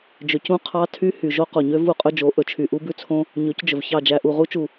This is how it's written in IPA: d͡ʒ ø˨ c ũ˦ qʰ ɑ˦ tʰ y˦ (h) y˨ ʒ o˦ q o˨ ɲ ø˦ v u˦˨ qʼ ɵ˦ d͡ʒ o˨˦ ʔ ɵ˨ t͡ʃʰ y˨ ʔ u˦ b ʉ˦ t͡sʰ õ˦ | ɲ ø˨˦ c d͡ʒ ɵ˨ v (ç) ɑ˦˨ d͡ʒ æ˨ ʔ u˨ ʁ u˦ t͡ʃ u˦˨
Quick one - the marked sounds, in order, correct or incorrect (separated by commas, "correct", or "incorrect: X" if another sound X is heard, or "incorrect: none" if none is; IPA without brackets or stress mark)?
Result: correct, correct